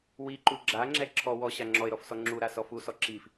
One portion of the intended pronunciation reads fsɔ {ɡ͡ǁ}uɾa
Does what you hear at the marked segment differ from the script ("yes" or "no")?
yes